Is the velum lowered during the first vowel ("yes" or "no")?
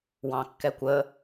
yes